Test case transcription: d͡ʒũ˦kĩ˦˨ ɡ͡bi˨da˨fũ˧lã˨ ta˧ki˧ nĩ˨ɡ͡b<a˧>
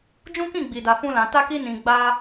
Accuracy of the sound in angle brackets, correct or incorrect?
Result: correct